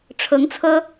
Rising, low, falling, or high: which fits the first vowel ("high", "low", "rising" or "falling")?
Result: rising